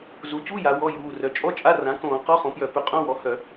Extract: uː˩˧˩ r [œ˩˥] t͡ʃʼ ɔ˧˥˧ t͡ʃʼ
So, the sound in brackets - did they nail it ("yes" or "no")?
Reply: yes